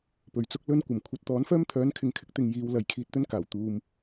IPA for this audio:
p ɵ˨ ɥ t͡s ʊ˥ k̚ l ɵ˥ n kʷ ɐ˨˩ m kʷʰ ɐ˨ t̚ t̪ ɔː˨˥ n f œː˥ m t̪ʰ œː˨˥ n kʰ ɪ˨ ŋ kʰ ɪ˧ k̚ t̪ ɪ˨ ŋ j iː˨˧ w l ɐ˨ j kʰ iː˧ t̚ t̪ ɵ˥ n k aː˨˩ w t̪ uː˨ m

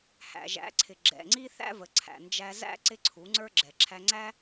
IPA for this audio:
h æ̰˨ ʒ æ̰˨˦ ǀʰ ɪ˨ ɡ͡ǁ ɛ̰˨ ŋ͡ǀ i˦ θ æ̰˦ v ə˨ ǀʰ æ̰˨ n d͡ʒ æ˧ z æ̰˦ ǀ ɪ˦ ǀʰ u˨˦ ŋ͡ǀ ə˞˦ ɡ͡ǁ ɛ˨ ǁʰ æ˧ ŋ͡ǀ æ˦

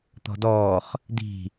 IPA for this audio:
t̪ ɔ̤ d ɔː χ | d i̤

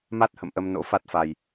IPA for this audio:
m a˦˥ t̚ h ə̰˧˨ m ʔ ə˧ m n o̰˧˥ f a˦˥ t̚ f a˧ j

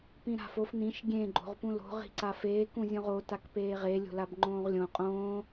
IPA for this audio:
p ĩ ɾ a̤ f o f n̪ ĩ ʃ ɡʲ ẽ ɡ͡ǃ o̤ ʁ p ũ l o̤ ʁ i̤ ǀ a f eː k ũ zʲ õ ʁ o t a k p eː ʁ e lʲ o̤ l a b ŋ͡ǃ õː ʁ lʲ õ qʼ õː

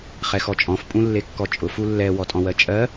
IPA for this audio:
χ ɛ x ɔ t͡ʃʼ ɔ̃ f pʼ ũ lː e kː ɔ t͡ʃʼ ʊ f u lː ɛ w ɔ tʼ ɔ̃ w ɜ t͡ʃʼ ɜ

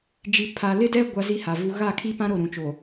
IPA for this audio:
d͡ʒ i˨ pʰ a˨ l ɪ˦ d ɛ˦ ɡʷ a˦ z i˦ h a˨ v u˦ ɣ a˦˨ kʰ i˦ p ã˦ ɾ o˦˨ ɾ ũ˨ t͡ʃ o˨

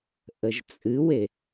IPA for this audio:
ʔ ə ʒ t͡sʼ ɨ w e

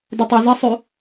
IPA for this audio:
d ɪ tˤ e z ɪ sˤ y

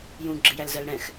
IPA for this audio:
j ũ ɡ͡ǁ ɪ j æ l z ɜ l ɽ ɛ̃ x

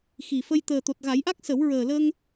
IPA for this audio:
x i˨˩ f ə˧ j t̪ əː˨˩ t̪ o˨˩ t̚ ɣ a˨˩˦ j ʔ a˦˥ k̚ s ə˨˩˦ w ɹ əː˨˩ l ə˧ ŋ

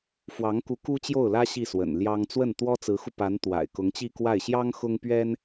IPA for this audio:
f w ɑ˧˥ ŋ k u˧˥ k u˥ t͡ɕ j o˥˩ ʊ̯ l ä˥ ɕ i˥˩ s w ə̰˨˩ n l j ɑ˥ ŋ t͡s w ə˥˩ n t̪ w ɔ˥ t͡s ɹ̩˧˥ x u˧ p a˧˥ n t̪ w a̰˨˩ ɪ̯ k ʊ˧˥ ŋ t͡ɕ i˥˧ k w a˥˩ ɪ̯ ɕ j ɑ˥ ŋ x ʊ˥ ŋ p ɥ ɛ˥ n

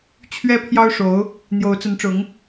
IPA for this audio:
t͡ɕʰ ɥ ɛ˥ pʰ j ɑ˥ ʊ̯ ʂ o˧˥ ʊ̯ | n̪ j o˧˥ ʊ̯ t͡s ə˧˥ n ʈ͡ʂ ʊ˧˥ ŋ

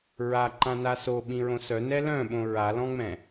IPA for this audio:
ɹ a ǃ ã n a s o ɓ ĩ ɹ õ s œ n ɛ l œ̃ ɓ õ ɹ a l ɔ̃ ŋ͡m ɛ̃

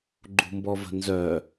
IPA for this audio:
ɡ͡ǃ ṳ m b ɔ v ə̤ n z œ

